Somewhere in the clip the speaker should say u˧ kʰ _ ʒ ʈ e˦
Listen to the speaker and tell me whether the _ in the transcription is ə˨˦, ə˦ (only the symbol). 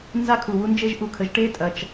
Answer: ə˨˦